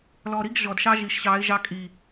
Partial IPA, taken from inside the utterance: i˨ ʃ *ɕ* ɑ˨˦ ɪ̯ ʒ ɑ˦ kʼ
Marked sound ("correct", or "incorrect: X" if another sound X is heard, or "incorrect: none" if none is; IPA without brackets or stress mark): correct